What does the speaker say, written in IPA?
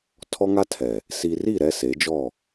tʰ ɔ˦ ŋ a˦ tʰ ɛ˨ | s i˨ r i˦˨ ɾ ɛ˦ s e˨˦ d͡ʒ ɔ˦˨

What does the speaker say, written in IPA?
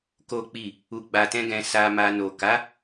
k o˦ k͡p i˦˨ | u˨ ɡ͡b a˨ t ɛ̃˧ ɡ ɛ̃˧ s a˧ m a˧ n o˨ k a˨˦

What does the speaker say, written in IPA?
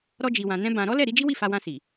ɾ ɔ˧ d͡ʒ i˨ w ã˨ n ɛ̃˧ b ã˧ ɾ ɔ˦ l ɛ˦˨ ɾ i˨˦ d͡ʒ i˦ w i˦˨ f a˧ w ã˧ s i˨

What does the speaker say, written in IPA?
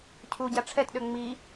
cʰ u ɟ a ʈ͡ʂʰ ɛ t ɗ ø ŋ͡m i

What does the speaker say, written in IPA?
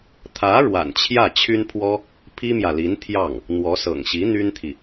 t̪ʰ ä˧˥ ɻ w a̰˨˩ n t͡ɕʰ j ä˥˩ t͡ɕʰ y˥ n pʰ w ɔ˥ | pʰ i˥ m j ä˨ l i˧˥ n t̪ʰ j ɑ˥˩ ŋ | n̪ w ɔ˧˥ s ɤ̰˨˩ ŋ ɕ i˧˥ n̪ y˥ n t̪ʰ i˨

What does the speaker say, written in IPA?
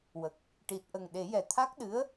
w ə˨˩ k̚ | ʈ i˨˩ t̚ ʔ ə˨˩ ŋ ɗ e˨˩˦ j ɛ˨˩ t̪ʰ a˦˥ k̚ ɗ ɨ˧˥ ə̯

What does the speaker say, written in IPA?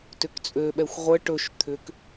t ʏ k t͡sʼ ø ɓ ɛ xʷ ʁʷ ə ʈ ɵ ʃ t̪ʰ ʏ k

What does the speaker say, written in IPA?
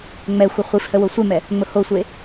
ŋ͡m ɛ xʷ ə χʷ i f h ə w o sʷ e m ɛ | ŋ͡m ʊ h o sʷ e

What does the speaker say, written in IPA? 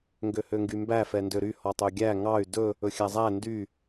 ŋ ɡ ø h ø ŋ ɡ y m b æ f ɛ n d ø ɾ y h ɔ tˤ ø ɡʲ æ ŋ ɑ y̯ d ɵ | ɵ xʲ æ zˤ æ n d y

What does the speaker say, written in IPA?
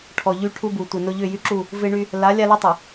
ʈʰ ɔ˨ ʎ y˦ ʈʰ u˦ b u˨ tʷ ɪ˨ n ʊ˦ ʎ ʏ˦˨ j y˦ ǁ u˦˨ | v ɪ˦ ɳ y˦ | l a˨˦ lʲ a˦ l i˦ tˤ u˨

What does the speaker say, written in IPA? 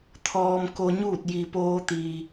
t̪ʰ ɔː˧ m k o˧ ɲ uː˥˨ t̚ j i˩ p oː˧ t̪ iː˩

